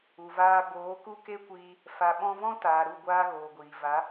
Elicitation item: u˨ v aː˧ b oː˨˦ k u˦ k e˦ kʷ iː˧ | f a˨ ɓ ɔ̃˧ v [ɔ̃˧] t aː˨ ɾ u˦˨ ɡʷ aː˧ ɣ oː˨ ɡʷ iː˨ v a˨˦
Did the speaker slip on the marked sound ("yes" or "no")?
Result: yes